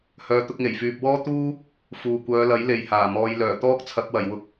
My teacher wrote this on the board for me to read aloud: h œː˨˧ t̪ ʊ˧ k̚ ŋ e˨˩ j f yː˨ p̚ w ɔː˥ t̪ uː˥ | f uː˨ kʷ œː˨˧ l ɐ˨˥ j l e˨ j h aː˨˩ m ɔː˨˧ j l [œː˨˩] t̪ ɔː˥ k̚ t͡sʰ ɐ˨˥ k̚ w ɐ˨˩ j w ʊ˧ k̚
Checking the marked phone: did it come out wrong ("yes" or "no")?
no